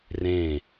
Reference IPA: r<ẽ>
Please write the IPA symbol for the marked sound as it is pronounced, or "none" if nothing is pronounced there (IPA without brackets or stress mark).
ẽ